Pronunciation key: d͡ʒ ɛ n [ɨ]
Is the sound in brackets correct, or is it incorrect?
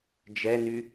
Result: incorrect